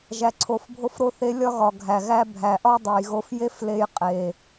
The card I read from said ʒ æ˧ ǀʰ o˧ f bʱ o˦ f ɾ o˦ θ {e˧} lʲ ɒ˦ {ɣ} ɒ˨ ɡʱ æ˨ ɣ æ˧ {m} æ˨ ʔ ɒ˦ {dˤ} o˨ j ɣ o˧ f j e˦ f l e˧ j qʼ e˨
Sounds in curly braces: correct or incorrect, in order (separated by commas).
correct, correct, incorrect, correct